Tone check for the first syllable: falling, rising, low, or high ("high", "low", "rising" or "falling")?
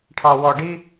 low